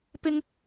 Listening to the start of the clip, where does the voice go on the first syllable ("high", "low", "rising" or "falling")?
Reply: high